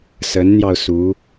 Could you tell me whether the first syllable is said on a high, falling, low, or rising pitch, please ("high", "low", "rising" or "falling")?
rising